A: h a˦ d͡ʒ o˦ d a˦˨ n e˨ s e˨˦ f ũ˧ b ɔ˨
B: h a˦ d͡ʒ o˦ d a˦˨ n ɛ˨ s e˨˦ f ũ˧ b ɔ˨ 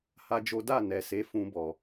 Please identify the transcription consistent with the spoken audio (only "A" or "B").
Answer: B